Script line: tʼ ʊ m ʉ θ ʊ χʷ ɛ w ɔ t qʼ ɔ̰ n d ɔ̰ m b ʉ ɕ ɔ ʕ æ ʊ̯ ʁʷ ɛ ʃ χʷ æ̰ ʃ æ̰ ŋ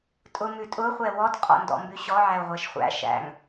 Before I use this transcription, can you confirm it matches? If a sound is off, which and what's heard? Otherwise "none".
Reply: θ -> tʼ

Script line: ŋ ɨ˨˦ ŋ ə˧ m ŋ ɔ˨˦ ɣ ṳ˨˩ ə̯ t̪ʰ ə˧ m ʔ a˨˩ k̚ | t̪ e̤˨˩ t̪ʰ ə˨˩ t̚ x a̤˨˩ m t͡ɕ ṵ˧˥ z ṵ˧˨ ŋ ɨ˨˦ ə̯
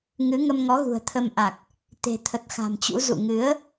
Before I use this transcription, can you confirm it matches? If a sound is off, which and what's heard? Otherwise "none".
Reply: none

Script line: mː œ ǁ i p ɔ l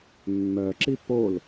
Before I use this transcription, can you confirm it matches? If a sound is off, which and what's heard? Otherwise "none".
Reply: ɔ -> o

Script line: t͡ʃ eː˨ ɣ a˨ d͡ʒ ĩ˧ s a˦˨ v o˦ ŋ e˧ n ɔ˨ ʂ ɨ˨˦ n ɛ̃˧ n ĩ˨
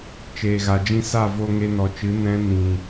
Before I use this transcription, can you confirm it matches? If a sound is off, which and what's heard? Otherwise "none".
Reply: ʂ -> t͡ʃ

